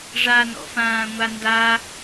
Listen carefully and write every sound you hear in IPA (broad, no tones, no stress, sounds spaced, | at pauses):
ʐ a n ɔ̰ f ãː ŋʷ a n d a